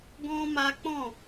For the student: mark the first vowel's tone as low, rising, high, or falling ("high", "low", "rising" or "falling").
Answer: high